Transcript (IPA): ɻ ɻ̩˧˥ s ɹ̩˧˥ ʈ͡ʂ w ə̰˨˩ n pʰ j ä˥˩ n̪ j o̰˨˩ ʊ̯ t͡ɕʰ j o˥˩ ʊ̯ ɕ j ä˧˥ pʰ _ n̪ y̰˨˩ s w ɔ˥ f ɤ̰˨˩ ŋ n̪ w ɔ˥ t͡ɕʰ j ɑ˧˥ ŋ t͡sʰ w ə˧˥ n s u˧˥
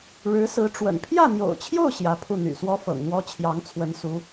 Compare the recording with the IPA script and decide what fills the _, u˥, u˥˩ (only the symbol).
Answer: u˥˩